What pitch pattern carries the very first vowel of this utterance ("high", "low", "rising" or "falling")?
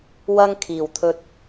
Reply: high